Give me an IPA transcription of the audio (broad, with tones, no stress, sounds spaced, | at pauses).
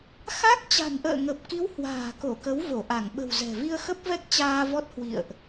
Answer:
x a˦˥ k̚ t͡ɕ a̤˨˩ n ʔ ə̰ː˧˨ ŋ ə˨˩ p̚ k i˨˦ w h w a̤ː˨˩ k o˧˩ k ə˨˦ w v o˧˩ ʔ a˧˩ ŋ ɓ ə̤˨˩ w z ɛ̤˨˩ v i˧ ə̯ x ə˦˥ p̚ v ɛ˦˥ k̚ t͡ɕ aː˧ v ɔ˦˥ t̚ h w ḭ˧˨ ə̯ ʔ